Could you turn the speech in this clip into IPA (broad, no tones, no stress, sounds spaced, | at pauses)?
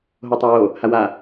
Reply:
ɦ o tˤ ɑ w o | h a w a